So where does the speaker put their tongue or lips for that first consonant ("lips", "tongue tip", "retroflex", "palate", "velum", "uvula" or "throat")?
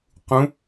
uvula